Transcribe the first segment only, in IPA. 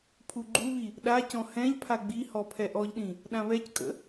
pʰ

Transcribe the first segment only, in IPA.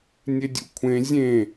nʲ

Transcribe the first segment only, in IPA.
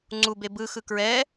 ŋ͡ǀ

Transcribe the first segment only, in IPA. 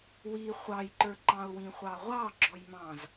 w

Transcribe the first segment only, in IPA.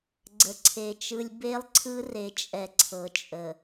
ɡ͡ǀ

